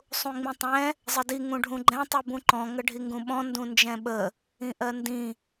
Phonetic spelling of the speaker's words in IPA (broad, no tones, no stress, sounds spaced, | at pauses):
sˤ ũ ŋ͡m ĩ tˤ ɛ̃ | zˤ ə d i ŋ ũ ɖʱ ũ ɡ͡ǃ ɛ̃ tˤ u b ũ ǃ ɔ̃ ŋ ə ɖʱ i ŋ ɡ ũ ɓ ɔ̃ n d ũ n d͡ʒ ɛ̃ ɓ ə | ĩ ʔ ɜ n d ĩ